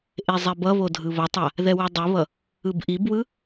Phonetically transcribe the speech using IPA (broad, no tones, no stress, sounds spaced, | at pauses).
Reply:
ʔ e zˤ ɛ b ʌ β o dʱ ɯ β ʌ tˤ a | ð ɛ w u dˤ ɯ β ʌ | ɯ b ʔ i b w ɯ